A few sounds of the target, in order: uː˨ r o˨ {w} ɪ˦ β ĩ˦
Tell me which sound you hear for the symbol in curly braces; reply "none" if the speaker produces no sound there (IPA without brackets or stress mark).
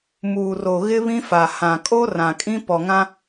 ɣ